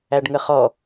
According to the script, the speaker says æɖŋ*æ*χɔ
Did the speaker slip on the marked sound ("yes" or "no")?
yes